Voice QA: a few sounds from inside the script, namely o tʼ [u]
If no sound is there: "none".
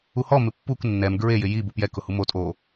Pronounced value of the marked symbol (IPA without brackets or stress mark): o